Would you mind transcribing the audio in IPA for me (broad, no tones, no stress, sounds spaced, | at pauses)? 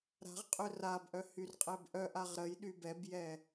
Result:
ɾ a̤ ʁ qʼ ø r a b ʔ œ h y r qʼ ɛ b ʔ œ ʔ a ʁ ɾ ə j ɗ y b ɛ b j ɛ